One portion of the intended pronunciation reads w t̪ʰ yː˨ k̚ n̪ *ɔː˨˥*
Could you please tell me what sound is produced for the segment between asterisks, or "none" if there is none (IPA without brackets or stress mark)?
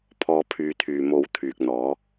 ɔː˨˥